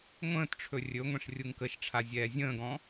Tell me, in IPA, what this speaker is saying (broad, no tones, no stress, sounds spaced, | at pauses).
ŋʷ ə̃ː t ʈ͡ʂʰ ɵ rʲ ɵ ŋʷ ɛ̃ ʂ rʲ u ŋ k ə ʃ ʈ͡ʂʰ a zʲ ɛː zʲ ə̃ː ɡ ɔ̃